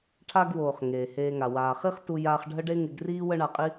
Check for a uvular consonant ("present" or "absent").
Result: present